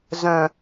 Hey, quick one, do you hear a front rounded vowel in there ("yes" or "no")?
yes